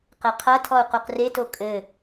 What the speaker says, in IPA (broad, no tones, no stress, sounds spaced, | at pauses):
q e qʰ ɐ tʰ ɔ u̯ q u q r e t o kʼ ɘ